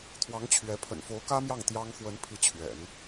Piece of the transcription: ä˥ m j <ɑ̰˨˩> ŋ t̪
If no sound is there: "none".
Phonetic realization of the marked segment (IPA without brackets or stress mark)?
ɑ˥˩